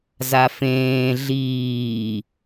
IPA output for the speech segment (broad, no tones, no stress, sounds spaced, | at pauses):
z a f ẽː ɮ iː